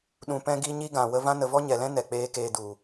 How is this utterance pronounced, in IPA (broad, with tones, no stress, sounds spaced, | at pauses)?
ɗ ũ˧ p ɛ̃˦ ɡ i˦ ɲ i˦ ɡ ã˨ w ə˧ v ã˦ n ə˨ v ɔ˦ ɲ ɛ˨ l ɛ̃˦ n ɛ˨ k͡p eː˦ k eː˧ d u˨